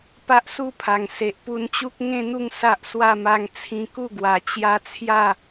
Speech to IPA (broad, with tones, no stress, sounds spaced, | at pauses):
p a˦ ʔ s u˦ pʰ a˨˩ ŋ s e˨ ʔ p u˧ n t͡ɕ u˦ k̚ ŋ ẽ˥˧ n̪ u˥˧ ŋ s a˦ ʔ s w a˥˧ m a˧ ŋ t͡sʰ ĩ˧ k u˥˧ ɡ w a˨˩ t͡ɕ j a˧ t͡sʰ j a˥˧